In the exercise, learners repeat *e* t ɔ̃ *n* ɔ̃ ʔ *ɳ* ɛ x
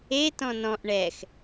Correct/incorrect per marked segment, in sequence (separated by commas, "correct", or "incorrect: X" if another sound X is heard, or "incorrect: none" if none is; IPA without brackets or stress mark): correct, correct, correct